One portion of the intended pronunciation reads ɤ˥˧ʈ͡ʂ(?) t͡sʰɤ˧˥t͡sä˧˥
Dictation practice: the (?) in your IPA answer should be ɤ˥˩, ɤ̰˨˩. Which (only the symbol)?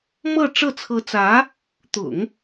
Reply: ɤ˥˩